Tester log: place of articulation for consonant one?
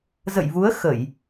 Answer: alveolar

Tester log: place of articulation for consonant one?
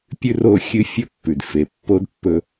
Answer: labial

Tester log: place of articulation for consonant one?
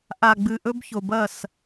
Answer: glottal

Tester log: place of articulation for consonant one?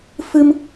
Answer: labial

